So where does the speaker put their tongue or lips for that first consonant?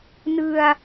tongue tip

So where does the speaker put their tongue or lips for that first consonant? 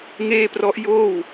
velum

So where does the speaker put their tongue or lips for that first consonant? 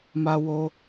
lips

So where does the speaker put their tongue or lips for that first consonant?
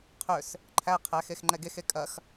uvula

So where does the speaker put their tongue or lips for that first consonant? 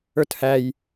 tongue tip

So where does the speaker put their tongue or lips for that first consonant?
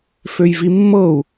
lips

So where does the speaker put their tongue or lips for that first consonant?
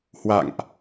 throat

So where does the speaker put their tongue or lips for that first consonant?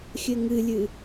velum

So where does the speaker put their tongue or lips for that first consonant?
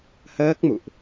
throat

